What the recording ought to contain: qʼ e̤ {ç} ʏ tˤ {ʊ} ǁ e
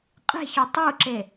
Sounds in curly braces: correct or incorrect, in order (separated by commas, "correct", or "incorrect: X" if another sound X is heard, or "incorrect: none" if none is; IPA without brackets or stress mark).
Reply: correct, incorrect: u